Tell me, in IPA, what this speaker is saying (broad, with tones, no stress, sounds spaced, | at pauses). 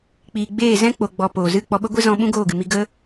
k͡p iː˨ ɡ͡b eː˦˨ z ɛ̃˦ k͡p o˨ ɡ͡b ɔ˨ p oː˨ z ɨ˦˨ k͡p ɔ˧ ɓ ə˦ ɡʷ e˦ z ɔ̃˧ ɓ ũ˦ ɡ oː˦˨ ɡ ɨ˨ m i˧ ɡ ə˦